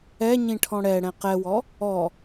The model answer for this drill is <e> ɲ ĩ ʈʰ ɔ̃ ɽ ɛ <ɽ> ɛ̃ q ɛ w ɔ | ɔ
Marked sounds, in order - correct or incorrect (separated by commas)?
incorrect, correct